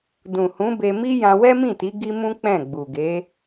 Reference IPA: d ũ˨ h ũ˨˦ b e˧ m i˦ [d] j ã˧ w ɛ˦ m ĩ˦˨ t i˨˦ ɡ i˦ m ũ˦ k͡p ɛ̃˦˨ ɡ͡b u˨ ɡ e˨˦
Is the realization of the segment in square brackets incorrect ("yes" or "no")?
yes